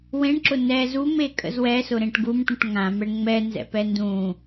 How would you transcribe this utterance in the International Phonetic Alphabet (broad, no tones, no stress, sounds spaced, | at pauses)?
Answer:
w ẽ ɳ ǁ ʊ n ɛ z u m e kʼ ə̰ z w ɛ s ʊ ɾ ẽ ʈ ɡ u m ʈ ũ ʈ ŋ ã m ɛ ɳ ŋ͡m ɛ n z ɛ̰ p ɛ n d ũ